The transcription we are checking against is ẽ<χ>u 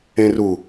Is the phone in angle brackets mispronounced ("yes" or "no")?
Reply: yes